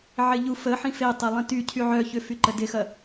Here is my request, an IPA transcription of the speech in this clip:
ʕɪʎu fəħĩ fetˤe lˠĩty cʰyʕœ çʏfyǃə dɪxɐ

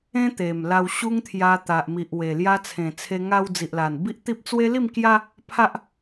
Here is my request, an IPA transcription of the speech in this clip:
ẽ˦t̪e˨˩mla˧w ɕu˦ŋt̪ʰja˧t̪a˨ʔ mi˨ʔwe˨˩ lja˧t͡sʰẽ˨˩t͡sʰe˧ŋa˧w d͡zi˨ʔla˨˩n bi˦ʔt̪i˦p̚ t͡swe˦li˥˧mkja˦ | pʰa˦ʔ

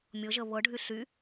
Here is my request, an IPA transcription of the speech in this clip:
mʲɤʒə βɤɖʱy ɬy

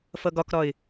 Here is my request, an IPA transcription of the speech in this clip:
fʌɡɒkɾɒɪ̯

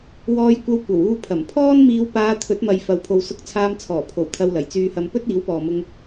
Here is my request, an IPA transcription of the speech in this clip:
wɔː˧jkʷɐ˧w kʷɐ˨˩wuː˧pʰɐ˨˩m pʰɔː˥nmiː˧wpaː˧ t̪ʰɵ˨˥t̚mɐ˨j fɐ˨˧wpʰo˨w sʊ˧k̚ t͡sʰaː˧mt͡sʰɔː˨˩pʰo˨˩w t̪ʰɐ˧wlɐ˨˩jt͡syː˧hɐ˧m pɵ˥t̚ iː˨˥wpɔː˨mʊ˧ŋ

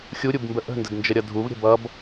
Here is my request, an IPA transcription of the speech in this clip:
xʲuɾʲubmbə ʔə̤ndədnd͡ʒəɾʲʌ dʱuvɾʲə̤ bʌb

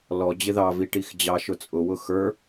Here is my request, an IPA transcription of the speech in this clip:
lɔ d͡ʑɪðɑvi ʈixd͡ʑɑ ʃʊt͡sʼʊwʊ xə˞

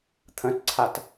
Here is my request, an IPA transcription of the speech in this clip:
t̪ʰə̃tǀʰat

